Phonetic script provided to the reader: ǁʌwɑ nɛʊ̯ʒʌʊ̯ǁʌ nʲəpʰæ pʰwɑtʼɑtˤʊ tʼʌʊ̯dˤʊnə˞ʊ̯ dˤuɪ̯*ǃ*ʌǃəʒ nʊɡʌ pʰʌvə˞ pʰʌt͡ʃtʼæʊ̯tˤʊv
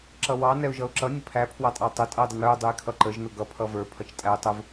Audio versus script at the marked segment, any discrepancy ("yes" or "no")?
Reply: yes